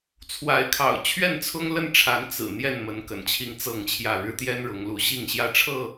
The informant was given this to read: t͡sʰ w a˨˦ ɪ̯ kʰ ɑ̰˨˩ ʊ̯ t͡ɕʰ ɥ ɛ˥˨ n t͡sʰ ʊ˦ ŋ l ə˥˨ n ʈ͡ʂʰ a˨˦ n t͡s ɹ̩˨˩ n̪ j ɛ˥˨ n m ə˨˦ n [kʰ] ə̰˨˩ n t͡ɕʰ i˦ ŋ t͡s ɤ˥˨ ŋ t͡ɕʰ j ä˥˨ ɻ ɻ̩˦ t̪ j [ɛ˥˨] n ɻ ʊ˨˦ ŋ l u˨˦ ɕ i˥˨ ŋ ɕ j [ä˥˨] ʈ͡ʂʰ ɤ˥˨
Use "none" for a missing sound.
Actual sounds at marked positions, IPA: k, ɛ˦, ä˥˨

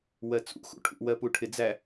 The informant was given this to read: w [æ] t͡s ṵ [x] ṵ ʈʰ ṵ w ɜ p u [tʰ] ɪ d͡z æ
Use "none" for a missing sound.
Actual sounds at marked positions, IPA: ɜ, x, ʈʰ

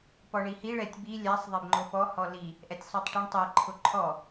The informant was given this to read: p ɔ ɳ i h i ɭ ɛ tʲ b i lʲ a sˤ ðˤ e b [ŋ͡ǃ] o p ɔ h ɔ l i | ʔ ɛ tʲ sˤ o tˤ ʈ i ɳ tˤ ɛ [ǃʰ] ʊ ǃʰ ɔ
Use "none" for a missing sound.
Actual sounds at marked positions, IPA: ŋ͡ǃ, ǃʰ

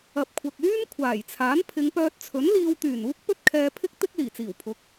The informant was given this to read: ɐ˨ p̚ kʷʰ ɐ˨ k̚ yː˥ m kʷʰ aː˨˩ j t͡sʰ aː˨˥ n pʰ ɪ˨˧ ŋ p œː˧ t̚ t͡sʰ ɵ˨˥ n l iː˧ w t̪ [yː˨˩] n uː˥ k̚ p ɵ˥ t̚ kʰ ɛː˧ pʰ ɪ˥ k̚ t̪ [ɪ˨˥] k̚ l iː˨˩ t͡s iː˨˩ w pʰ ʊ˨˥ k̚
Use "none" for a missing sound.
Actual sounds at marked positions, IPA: yː˨˩, ɪ˥

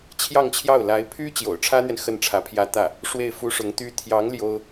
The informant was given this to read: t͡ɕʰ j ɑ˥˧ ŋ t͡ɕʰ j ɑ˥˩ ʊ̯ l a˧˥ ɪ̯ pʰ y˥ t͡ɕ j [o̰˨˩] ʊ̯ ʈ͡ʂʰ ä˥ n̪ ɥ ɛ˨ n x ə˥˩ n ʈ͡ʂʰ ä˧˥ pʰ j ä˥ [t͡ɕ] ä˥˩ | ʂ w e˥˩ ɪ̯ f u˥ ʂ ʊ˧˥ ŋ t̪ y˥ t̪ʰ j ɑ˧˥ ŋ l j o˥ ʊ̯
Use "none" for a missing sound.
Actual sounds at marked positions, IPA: o̰˨˩, t̪

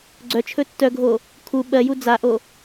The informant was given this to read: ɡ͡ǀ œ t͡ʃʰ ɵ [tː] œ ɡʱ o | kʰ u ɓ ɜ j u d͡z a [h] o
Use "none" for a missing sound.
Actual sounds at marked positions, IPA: tː, ʔ

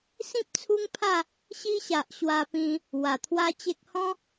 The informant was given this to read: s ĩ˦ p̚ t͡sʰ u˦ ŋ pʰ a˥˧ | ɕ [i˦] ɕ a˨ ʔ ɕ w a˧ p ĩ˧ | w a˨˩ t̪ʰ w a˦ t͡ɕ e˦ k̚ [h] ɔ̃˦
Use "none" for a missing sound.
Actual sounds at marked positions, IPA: i˦, h

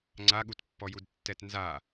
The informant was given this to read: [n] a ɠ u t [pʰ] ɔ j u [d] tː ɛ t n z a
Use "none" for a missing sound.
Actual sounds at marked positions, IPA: ŋ͡ǀ, pː, d

